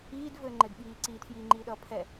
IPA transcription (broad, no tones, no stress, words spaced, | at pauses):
iːdvɘːŋ͡ǃɘdɓiː ǀiːtʰjiːŋ͡ǃiːɗʌː pʰɛ